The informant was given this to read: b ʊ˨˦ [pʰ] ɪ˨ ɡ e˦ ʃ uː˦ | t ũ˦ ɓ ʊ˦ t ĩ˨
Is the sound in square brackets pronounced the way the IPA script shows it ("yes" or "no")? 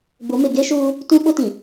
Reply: no